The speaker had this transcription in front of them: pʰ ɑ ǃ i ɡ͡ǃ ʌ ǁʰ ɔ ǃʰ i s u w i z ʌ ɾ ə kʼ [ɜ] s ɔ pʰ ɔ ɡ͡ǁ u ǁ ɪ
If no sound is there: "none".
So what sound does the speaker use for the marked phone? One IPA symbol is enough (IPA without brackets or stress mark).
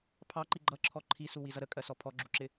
ɜ